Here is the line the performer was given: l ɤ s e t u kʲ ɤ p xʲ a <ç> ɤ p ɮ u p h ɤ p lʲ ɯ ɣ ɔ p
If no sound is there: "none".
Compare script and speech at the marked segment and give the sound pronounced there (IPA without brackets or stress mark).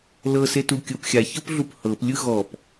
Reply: ç